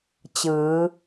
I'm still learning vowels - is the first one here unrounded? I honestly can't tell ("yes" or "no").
yes